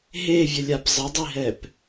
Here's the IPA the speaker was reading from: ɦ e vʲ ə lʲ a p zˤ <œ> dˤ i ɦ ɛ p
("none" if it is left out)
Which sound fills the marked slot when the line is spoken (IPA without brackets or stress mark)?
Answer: ə